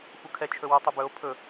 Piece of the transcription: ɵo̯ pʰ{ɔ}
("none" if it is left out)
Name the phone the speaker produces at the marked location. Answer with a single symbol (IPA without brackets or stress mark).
ɵ